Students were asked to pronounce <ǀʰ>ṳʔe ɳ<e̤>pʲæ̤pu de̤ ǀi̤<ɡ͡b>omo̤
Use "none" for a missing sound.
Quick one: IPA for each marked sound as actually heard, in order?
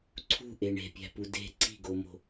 ǀʰ, e̤, ɡ

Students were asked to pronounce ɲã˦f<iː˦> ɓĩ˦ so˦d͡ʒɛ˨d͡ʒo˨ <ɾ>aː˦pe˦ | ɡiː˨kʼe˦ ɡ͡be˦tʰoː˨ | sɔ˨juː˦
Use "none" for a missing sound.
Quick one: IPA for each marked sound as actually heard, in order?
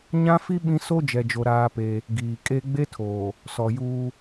i˦, ɾ

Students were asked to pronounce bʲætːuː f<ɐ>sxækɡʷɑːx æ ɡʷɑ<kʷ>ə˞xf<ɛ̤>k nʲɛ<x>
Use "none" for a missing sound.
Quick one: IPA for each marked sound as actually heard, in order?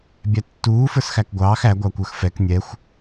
ə˞, kʷ, ɛ, xʷ

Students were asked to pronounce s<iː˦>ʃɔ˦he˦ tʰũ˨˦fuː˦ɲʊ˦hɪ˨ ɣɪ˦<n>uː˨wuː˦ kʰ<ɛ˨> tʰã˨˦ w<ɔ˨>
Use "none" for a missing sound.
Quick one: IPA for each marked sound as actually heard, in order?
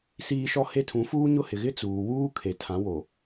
iː˦, t͡s, e˨, o˨

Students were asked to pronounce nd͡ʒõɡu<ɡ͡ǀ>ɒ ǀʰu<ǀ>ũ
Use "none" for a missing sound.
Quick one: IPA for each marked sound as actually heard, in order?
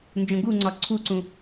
ŋ͡ǀ, ǀ

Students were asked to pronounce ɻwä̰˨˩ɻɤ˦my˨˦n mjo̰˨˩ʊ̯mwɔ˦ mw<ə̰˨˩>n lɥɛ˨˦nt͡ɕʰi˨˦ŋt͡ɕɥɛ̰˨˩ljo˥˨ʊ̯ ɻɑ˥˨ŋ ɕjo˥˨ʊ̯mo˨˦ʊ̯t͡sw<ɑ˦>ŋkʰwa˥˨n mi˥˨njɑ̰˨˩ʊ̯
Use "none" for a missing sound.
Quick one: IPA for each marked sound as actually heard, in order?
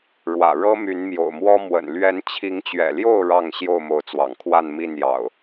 ə̰˨˩, ɑ̰˨˩

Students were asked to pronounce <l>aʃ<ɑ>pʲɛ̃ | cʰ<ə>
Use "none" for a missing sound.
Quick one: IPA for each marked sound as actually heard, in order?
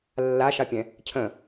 lː, ɑ, ə̃

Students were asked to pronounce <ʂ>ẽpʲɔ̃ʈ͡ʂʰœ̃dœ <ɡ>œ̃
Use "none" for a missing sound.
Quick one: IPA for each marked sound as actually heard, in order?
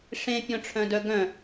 ʂ, ɡ

